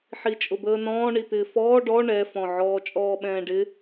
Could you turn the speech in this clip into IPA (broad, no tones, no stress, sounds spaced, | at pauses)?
ħ i t͡ʃʼ ʊ b əː n ɔ̃ː ɳ i t̪ ɪː f ɔː ɖ ɔ ɳ ɛ f ɔ̃ ʕ ɔː t͡ʃʼ ɔː ɓ ɛ̃ː ɖ ɪ